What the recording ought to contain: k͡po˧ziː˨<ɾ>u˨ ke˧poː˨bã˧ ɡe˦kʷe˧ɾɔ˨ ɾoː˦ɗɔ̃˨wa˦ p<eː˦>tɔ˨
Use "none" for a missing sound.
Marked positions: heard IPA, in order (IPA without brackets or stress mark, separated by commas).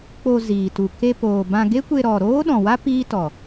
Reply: t, iː˦